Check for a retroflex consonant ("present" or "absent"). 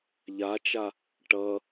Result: present